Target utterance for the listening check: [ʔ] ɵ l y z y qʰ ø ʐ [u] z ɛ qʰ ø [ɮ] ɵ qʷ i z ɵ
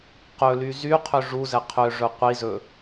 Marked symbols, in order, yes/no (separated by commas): no, yes, no